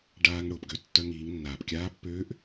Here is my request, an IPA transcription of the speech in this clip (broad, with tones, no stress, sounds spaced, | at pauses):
ɖ aː˧ ŋ ɽ ʊː˩ p ɡ ø˧ tː œ˧ ŋ iː˩˧ ŋ nː aː˩ p kʲ aː˧˥ pː øː˧˥ ʔ